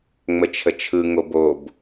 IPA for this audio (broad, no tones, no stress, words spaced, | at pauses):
ŋ͡mət͡ʃʰət͡ʃʰɯ ŋobob